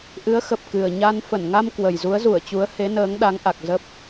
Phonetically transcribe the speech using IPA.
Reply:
ʔ ɨ˨˦ ə̯ x ə˨˩ p̚ k ɨ˨˩ ə̯ ɲ a˧ n f ə˧˩ n ŋ a˧ m k w ə˨˩ j z u˨˦ ə̯ z u˧˩ ə̯ t͡ɕ u˨˦ ə̯ h e˨˦ n əː˨˦ ŋ ɗ a˨˦ ŋ ʔ a˨˩ k̚ z ə˦˥ p̚

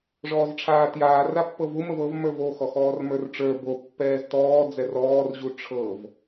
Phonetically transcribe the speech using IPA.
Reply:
ʐ ɔː z ʈ͡ʂʰ aː t j aː r a pː ɤ v u m ə v ɤ v m ə˞ v o x ɔ x ɔː r m ə˞ r ʈ͡ʂ ə˞ b o pː ɛː z t ɔː d͡z ɛ r ɔː r ʑ u ʈ͡ʂʰ ɤ v

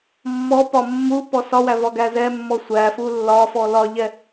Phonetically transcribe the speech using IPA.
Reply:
mː ɔ p ɒ mː u p ɔ s ɒ w æ v ɒ ɡ æ z ɛ mː ɔ sʷ æ f u lː ɒ f ɔ l ɒ ʎ ɛ

